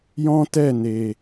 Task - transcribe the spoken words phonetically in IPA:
jɔ̃˦tɛ˦˨ne˨

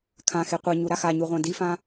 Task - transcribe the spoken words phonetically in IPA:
kʰãxe qʷɛ ɲuɾaxaɲu ʁʷãdifã

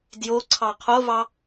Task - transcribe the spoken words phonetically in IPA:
djo ǀʰɑqʰovɑ

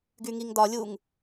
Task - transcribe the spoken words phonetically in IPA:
ɡyŋiŋdɒlʲuŋ

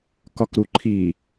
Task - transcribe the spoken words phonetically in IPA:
kɒkɾu ǃʰi

